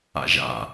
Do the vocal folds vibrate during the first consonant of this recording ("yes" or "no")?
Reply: yes